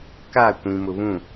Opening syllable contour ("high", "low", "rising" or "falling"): falling